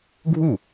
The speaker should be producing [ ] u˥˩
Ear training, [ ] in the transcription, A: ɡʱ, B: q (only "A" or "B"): A